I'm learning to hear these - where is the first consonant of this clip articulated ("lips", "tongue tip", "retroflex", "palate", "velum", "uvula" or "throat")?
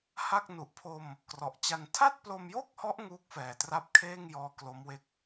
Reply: throat